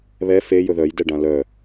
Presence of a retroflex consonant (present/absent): present